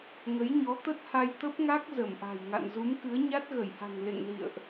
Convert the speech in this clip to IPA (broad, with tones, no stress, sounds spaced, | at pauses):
ŋ ə˨˦ j ɲ ɔ˨˦ t̪ ə˦˥ t̚ h a˧ j t̪ ə˦˥ p̚ ŋ a˦˥ k̚ z ə˧˩ m ʔ a̤˨˩ j ŋ a̰˧˨ n z u˨˦ m k ɨ˨˦ ə̯ ɲ a˦˥ t̚ ɣ ə˧˩ j h a̤˨˩ ŋ l ḛ˧˨ ŋ l ḭ˧˨ ə̯ ʔ